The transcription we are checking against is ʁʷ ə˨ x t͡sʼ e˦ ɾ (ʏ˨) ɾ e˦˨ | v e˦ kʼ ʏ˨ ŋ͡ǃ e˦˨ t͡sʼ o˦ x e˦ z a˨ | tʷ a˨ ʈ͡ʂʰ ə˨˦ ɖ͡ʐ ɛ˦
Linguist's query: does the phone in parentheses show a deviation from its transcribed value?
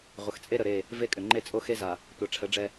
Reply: yes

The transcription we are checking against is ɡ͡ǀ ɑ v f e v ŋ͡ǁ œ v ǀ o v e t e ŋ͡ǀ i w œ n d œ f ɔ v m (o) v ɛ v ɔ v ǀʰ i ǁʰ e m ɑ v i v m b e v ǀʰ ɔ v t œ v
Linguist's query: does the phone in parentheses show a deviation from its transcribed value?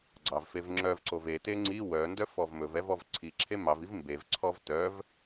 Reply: yes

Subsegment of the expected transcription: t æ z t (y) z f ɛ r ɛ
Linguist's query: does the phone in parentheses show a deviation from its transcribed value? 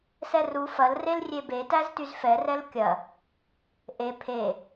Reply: no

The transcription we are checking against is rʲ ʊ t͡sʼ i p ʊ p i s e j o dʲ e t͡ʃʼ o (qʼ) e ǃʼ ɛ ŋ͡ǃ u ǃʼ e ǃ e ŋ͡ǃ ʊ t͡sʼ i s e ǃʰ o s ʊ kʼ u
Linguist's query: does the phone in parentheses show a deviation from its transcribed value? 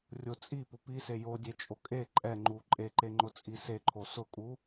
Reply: yes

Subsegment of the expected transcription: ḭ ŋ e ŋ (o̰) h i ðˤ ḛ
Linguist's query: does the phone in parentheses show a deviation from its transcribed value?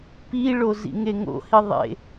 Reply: no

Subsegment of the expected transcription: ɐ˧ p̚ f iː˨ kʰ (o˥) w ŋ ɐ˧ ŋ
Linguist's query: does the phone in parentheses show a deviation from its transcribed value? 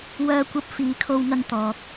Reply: yes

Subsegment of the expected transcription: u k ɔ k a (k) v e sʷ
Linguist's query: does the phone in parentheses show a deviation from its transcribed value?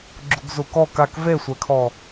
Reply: no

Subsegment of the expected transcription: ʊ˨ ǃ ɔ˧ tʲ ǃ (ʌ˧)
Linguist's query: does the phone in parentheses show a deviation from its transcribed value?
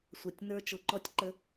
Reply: yes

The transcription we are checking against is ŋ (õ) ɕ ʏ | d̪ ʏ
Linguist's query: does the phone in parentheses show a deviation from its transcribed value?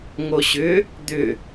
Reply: yes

